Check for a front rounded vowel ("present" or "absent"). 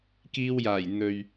absent